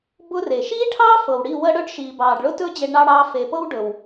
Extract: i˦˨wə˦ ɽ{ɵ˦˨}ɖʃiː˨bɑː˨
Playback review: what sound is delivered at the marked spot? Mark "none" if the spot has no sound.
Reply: ɵ˦˨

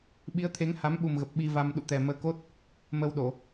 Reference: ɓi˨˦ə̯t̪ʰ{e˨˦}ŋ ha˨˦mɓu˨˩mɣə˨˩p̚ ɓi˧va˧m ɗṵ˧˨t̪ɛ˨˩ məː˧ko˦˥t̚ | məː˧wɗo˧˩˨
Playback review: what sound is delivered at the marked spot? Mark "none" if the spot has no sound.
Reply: e˨˦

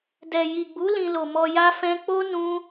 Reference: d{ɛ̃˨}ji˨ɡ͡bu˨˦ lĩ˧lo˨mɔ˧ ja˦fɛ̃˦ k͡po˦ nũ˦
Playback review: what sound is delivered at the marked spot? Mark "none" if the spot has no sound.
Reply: ɛ˨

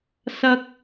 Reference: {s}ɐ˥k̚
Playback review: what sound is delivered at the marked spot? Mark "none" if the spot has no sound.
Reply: s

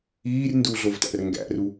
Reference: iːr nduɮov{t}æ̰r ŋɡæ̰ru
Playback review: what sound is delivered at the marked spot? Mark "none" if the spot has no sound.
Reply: t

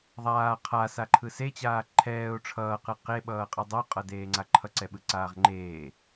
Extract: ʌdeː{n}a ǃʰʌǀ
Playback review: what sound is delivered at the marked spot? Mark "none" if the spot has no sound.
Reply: ŋ͡ǀ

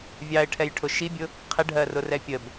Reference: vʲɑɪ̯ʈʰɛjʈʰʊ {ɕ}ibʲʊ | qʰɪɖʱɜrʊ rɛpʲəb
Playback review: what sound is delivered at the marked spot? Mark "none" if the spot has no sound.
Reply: ʃ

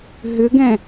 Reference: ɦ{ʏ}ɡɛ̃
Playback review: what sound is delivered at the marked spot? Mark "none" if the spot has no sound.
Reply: ʏ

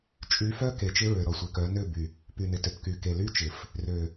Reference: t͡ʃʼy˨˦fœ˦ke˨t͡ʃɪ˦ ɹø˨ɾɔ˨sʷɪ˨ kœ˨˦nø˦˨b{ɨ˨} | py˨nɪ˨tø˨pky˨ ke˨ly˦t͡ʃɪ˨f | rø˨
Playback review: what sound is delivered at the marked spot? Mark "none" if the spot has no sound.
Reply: y˨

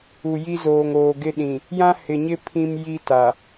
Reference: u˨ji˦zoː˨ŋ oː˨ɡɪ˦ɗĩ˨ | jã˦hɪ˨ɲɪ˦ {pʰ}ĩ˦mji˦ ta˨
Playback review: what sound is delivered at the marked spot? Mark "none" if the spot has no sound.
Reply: pʰ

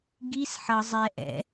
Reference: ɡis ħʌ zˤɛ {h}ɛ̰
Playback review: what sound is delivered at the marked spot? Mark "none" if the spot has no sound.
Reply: ʔ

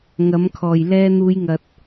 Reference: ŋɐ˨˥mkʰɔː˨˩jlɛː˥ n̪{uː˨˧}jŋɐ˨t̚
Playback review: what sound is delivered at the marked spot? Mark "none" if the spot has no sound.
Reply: uː˨˧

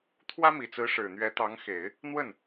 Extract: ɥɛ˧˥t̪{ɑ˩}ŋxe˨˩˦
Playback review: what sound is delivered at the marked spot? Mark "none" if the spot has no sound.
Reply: ɑ˧˥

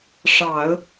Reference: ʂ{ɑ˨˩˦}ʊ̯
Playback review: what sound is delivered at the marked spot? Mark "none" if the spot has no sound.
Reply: ɑ˨˩˦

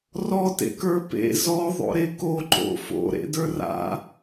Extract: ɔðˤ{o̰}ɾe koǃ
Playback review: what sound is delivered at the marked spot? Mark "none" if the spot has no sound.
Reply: o̰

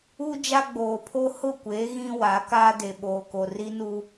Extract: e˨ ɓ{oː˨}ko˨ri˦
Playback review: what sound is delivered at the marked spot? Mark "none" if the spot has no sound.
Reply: oː˨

